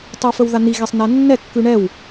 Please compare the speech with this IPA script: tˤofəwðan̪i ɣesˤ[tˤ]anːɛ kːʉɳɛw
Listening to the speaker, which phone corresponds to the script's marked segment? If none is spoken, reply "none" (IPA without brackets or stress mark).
n